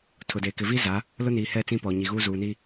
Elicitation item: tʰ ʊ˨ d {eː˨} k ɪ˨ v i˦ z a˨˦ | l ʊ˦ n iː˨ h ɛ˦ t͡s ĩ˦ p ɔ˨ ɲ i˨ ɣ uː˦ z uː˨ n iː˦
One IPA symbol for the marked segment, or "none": eː˨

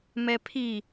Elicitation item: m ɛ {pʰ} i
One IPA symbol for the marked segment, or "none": pʰ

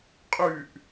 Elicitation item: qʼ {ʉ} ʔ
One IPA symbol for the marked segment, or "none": ʉ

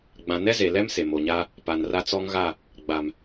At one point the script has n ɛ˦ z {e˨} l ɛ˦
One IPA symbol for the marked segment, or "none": e˨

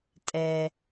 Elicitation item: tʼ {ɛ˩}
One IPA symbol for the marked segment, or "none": ɛ˩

